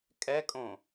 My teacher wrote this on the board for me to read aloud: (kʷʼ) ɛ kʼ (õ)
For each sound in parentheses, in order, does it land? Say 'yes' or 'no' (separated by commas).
no, yes